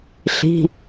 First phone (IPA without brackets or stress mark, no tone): ɬ